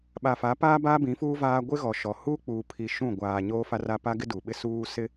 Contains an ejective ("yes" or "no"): no